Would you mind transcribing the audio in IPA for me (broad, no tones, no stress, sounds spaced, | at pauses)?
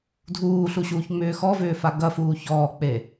dʱ uː ɬ u ɕ uː ç ŋ͡m ʏː x ɔ v ʏː f a ɡ ɐ f uː ç ɔː k͡p e